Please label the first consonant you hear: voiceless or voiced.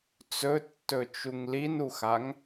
voiceless